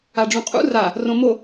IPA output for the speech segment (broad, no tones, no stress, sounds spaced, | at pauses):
a ɖ͡ʐ ũ qʼ ṵ r a | r õ m o